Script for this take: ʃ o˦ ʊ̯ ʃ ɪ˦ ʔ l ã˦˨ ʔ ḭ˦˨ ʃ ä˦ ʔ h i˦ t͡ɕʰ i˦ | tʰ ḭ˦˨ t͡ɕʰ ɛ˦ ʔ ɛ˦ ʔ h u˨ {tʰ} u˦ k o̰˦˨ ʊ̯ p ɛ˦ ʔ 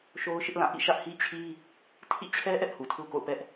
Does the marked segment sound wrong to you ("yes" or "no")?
no